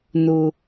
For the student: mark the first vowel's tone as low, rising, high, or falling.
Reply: high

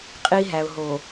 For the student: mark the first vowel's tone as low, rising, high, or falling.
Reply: high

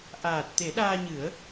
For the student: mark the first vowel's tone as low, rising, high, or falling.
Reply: low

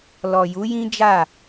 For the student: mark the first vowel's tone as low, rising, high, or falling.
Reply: low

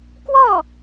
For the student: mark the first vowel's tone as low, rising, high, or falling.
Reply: falling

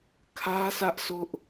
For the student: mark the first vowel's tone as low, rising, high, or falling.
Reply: high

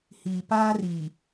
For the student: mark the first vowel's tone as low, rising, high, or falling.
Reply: low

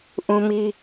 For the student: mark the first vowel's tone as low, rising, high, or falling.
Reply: high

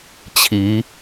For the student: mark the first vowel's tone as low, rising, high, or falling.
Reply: rising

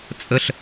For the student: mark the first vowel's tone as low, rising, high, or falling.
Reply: high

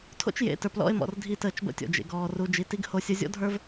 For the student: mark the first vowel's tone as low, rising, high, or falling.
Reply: high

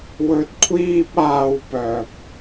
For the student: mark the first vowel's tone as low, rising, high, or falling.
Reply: low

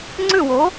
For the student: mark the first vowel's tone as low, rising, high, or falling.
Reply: falling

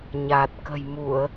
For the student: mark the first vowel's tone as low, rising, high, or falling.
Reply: low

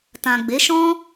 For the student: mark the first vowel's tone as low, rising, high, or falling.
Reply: low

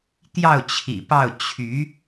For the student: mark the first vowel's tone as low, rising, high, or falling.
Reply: falling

